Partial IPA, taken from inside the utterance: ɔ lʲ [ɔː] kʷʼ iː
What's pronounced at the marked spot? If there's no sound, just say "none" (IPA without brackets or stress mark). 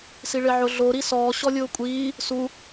ʊː